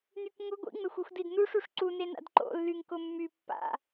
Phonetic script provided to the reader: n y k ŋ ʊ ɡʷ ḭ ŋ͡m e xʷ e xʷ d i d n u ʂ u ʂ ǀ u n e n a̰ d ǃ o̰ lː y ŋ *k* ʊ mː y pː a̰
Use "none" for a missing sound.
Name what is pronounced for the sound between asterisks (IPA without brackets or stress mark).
k